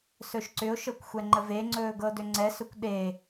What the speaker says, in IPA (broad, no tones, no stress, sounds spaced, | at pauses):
s ɵ ʃ ǀ ʏ ʊ̯ ʃ ɤ kʷ xʷ ɛ ŋ͡ǃ ə v e ŋ͡ǀ ɵː ɡ ɤ d ʏ ŋ͡ǀ ɛ s ɵ kʷ ɗ e